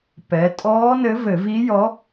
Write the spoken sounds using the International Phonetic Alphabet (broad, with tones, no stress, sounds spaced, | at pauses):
p ɛ˩˧ tʼ ɔː˧˥ n ɘ˧˥ v ɘ˧˩˧ v i˧˥ j ɔ˧˥